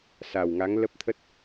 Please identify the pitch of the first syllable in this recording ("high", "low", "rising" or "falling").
low